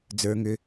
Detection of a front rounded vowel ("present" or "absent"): present